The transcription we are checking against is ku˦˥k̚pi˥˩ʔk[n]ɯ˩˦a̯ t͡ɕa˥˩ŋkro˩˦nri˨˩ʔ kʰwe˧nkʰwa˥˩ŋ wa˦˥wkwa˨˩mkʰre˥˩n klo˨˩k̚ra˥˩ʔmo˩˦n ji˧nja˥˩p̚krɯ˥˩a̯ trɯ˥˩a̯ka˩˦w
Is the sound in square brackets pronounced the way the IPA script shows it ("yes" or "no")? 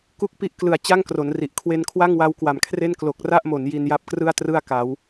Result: no